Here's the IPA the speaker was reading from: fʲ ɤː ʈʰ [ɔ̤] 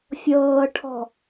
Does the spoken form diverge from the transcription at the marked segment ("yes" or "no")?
no